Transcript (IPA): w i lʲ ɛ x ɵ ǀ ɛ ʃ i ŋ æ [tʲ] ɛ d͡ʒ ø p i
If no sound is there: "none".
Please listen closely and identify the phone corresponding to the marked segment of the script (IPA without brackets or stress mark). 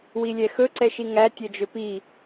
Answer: tʲ